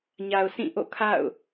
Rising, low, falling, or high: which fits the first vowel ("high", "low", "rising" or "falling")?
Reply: low